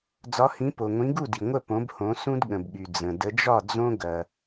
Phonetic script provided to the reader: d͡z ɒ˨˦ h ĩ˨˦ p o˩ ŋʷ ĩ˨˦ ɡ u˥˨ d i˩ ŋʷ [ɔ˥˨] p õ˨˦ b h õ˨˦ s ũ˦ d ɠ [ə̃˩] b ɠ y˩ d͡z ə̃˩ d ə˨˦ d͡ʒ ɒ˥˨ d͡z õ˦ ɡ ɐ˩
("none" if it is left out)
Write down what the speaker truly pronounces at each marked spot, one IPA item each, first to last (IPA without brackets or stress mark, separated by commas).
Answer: ə˥˨, ə̃˩